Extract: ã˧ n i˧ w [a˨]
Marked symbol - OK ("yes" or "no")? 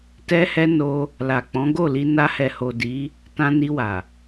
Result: yes